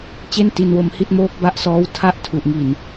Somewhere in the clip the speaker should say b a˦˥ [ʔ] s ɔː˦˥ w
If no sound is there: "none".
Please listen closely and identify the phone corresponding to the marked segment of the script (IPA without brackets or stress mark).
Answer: ʔ